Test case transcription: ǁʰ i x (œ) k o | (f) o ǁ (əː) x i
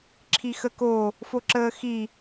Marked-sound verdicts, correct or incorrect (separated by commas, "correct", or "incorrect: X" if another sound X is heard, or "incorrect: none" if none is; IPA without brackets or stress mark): incorrect: ə, correct, correct